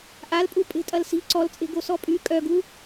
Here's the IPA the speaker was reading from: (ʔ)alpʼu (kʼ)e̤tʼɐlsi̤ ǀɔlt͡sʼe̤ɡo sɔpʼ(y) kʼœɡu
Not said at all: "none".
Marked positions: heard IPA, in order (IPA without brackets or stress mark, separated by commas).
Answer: ʔ, pʼ, y